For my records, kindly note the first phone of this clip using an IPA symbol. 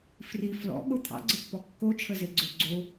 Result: f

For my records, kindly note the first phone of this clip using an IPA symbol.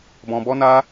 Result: b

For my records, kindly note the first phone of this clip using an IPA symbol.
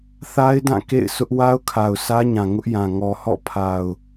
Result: θ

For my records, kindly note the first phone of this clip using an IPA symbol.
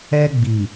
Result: ɛ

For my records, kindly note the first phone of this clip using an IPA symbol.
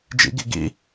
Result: d͡ʒ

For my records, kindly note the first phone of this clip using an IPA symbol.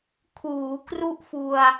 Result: kʰ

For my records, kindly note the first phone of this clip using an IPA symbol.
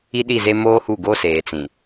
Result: i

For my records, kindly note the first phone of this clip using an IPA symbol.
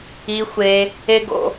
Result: i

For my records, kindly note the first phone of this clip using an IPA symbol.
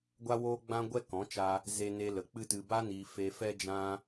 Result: ɡʷ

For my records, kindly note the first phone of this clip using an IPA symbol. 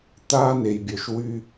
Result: t̪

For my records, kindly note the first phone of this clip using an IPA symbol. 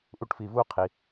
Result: ʔ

